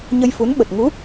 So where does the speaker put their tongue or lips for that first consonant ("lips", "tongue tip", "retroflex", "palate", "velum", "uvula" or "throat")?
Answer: palate